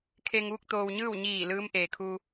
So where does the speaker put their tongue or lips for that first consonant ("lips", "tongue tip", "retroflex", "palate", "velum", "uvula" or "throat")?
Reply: velum